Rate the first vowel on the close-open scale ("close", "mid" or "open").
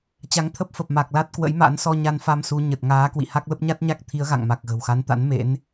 open